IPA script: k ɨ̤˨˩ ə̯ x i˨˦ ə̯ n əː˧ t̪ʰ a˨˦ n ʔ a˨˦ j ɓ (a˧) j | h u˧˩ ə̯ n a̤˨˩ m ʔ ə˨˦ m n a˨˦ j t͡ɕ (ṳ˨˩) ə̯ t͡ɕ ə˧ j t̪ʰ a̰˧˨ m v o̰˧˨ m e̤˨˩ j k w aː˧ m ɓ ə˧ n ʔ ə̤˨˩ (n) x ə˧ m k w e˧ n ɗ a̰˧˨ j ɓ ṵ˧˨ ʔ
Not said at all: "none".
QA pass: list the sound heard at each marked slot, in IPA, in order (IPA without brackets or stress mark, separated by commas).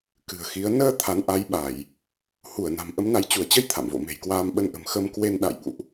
a˧˩˨, u˧˩, m